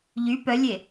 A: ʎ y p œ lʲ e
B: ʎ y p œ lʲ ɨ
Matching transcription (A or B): A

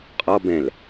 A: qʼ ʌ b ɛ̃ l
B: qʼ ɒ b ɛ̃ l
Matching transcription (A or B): B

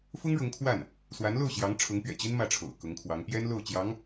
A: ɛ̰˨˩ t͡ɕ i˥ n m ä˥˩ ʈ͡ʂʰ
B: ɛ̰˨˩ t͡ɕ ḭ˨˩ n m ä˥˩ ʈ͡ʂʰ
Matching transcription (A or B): A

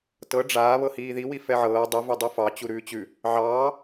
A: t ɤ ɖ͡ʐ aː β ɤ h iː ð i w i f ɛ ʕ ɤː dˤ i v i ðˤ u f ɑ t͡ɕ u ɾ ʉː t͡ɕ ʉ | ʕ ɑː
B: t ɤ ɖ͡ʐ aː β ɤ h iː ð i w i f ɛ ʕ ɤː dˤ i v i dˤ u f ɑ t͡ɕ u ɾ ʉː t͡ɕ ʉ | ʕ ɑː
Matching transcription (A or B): B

